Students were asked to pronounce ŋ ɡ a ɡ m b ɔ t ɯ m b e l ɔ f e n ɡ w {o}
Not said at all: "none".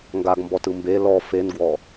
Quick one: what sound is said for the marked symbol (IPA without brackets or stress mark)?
ɔ